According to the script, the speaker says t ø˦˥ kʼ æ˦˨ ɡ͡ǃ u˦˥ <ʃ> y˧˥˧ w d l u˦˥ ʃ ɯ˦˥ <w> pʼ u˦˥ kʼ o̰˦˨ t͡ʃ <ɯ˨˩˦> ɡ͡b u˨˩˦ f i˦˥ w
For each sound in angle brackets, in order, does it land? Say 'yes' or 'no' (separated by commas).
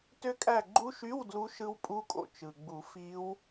yes, yes, no